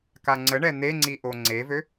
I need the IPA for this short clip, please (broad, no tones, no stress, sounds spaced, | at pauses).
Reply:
k a ŋ͡ǀ ə ɳ ɛ n̪ e ŋ͡ǀ i ʔ o ŋ͡ǀ e v ø